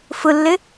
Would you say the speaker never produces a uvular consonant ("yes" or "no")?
yes